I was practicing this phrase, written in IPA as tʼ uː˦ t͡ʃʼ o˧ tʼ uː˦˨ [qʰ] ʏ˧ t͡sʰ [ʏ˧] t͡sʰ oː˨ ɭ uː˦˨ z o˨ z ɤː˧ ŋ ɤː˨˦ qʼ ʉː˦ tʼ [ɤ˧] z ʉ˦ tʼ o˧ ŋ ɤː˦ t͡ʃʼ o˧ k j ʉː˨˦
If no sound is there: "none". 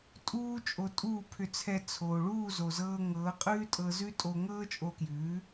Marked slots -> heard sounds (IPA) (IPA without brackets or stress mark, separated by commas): pʰ, ɛ˧, ɤ˧